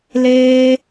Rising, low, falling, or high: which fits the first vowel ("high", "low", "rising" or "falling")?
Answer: high